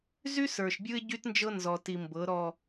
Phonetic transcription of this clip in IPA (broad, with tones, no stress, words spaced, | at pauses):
zy˦ sə˞˨ʃbʲɯ˦ɪ̯ ɟy˦tnd͡ʒɤ˦nzɔ˨ti˨ mbɤ˨˦ ɾɔ˨